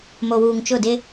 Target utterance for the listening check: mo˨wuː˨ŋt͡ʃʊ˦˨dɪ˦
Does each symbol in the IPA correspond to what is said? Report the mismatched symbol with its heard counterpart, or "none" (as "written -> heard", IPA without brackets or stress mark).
none